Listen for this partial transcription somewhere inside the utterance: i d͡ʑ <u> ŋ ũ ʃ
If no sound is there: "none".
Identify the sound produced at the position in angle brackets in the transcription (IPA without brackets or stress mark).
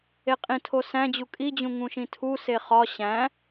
ũ